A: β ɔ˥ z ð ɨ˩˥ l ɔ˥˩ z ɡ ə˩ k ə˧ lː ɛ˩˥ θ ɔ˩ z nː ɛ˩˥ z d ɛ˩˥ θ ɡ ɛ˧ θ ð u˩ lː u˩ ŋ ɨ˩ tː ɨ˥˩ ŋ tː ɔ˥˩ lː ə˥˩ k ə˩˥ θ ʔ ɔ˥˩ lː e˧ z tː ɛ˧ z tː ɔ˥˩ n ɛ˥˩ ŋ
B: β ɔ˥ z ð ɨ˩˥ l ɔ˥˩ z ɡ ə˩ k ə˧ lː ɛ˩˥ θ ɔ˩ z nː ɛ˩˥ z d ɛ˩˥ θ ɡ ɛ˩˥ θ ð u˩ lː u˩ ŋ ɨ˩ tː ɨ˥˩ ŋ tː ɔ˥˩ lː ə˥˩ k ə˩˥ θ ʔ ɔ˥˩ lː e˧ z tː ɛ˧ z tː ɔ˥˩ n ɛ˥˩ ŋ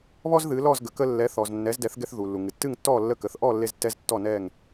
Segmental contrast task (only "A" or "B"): A